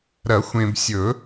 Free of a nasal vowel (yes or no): no